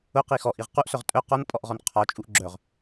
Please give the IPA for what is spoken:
ʊqi xɔʔiʁ quʔsœʁ tʼœ qɔnpʼɔʔʁɔn qʰɒt͡ʃʼuʔ ɡ͡ǁœʁ

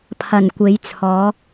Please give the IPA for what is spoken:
pʰɐ˨˩nkʷe˨˥jt͡sʰɔː˨˥

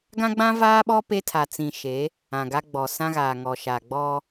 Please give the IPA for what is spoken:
ɡã˦ɡ͡bã˦ vaː˦ɓɔ˦ pe˦tʰa˨t͡sĩ˨ ʃe˨˦ | ã˨ɡa˦ɡ͡bɔ˨ sã˦ɣaː˨ŋɔ˨ ʃa˨ɡ͡bɔ˦

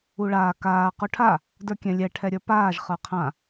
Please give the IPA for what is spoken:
uɭaː kaː quʈʰa | də˞kʲɛ̃lʲɛ ʈʰɛɾʲə˞paːʒ χə˞qʰã

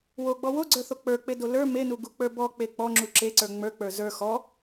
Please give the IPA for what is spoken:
woɡ͡bɔ woɡ͡ǀə˞θo k͡pə˞k͡pedo lə˞ menuɡuk͡pə˞ bɔk͡pe k͡pɔŋ͡ǁu ǁeǀə˞ ŋ͡mə˞k͡pə˞ zə˞ xɔ

